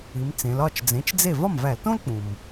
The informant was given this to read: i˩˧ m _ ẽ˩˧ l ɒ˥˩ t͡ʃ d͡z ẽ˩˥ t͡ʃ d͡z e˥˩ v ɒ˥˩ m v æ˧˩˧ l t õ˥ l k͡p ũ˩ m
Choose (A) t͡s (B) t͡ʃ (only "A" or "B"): A